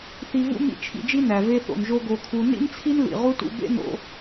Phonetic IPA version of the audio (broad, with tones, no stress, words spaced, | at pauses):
θi˧vṵ˦ mḭ˦t͡ʃʰḭ˧d͡ʒi˦ næ˨ve˧θo̰˨nʒo˧ ɡo˧kʰu˧ nḭ˦nt͡sʰi˦n lḭ˨ ʁu˦tṵ˧ bḛ˦no̰˧